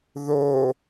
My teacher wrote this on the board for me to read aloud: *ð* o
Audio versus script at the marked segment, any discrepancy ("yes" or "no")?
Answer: no